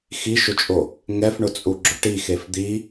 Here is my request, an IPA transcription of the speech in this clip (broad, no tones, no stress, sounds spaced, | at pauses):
x i ʃ ʊ t͡ʃʼ o | ŋ ɛ f ɳ ʊ t͡sʼ u ɡ͡ǁ ʊ ʈ i x e f d̪ i